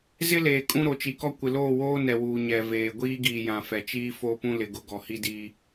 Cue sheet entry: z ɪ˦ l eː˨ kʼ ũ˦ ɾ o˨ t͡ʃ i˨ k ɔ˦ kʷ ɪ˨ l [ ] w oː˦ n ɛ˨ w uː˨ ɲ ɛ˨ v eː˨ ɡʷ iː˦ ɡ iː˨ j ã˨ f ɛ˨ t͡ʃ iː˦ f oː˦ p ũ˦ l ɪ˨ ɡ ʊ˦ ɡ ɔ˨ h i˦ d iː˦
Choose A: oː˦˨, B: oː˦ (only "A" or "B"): A